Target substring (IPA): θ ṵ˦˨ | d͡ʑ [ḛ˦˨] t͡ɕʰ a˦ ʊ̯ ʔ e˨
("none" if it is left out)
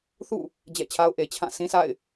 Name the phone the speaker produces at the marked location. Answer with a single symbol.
ɛ̰˦˨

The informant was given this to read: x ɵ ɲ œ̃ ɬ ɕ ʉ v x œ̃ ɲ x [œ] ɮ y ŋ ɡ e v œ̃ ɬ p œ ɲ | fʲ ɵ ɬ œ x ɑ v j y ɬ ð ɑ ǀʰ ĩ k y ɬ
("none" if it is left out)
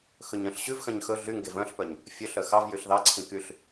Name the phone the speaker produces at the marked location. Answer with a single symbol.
ɵ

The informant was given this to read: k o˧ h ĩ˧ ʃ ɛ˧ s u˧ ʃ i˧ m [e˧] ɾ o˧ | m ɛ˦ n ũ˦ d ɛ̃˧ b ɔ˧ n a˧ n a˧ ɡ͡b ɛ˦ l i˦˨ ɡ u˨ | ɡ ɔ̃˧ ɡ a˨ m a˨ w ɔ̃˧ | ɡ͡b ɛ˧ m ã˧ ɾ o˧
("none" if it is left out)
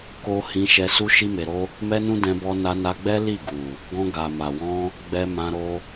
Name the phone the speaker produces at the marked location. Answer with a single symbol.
e˨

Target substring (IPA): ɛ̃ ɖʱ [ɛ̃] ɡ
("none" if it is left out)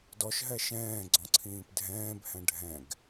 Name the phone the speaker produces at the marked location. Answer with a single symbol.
ɛ̃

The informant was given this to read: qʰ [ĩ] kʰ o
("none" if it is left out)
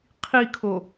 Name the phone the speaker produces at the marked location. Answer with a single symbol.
i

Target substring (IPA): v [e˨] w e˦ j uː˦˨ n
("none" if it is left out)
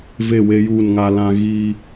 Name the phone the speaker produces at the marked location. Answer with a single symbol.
e˦˨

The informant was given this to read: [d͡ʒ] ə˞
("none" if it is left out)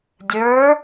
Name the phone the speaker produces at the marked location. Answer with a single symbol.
dʲ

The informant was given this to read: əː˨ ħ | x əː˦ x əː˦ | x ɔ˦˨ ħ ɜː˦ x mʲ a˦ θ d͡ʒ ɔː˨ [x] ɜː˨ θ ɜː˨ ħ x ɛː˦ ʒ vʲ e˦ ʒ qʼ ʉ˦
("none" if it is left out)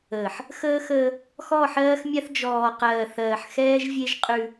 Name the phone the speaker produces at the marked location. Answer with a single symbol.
q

